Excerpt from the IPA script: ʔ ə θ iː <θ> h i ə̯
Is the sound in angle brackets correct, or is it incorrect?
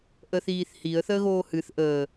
correct